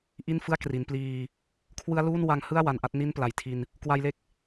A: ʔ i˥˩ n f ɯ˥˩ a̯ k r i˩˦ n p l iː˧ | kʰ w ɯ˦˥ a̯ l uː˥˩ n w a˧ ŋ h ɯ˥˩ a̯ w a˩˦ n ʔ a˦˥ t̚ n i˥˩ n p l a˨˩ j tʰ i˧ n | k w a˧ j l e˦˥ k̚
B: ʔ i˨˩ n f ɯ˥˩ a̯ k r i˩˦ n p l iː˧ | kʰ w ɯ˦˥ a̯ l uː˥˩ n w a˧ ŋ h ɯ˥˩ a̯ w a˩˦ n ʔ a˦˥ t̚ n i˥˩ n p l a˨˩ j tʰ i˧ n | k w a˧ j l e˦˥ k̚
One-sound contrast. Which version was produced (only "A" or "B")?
A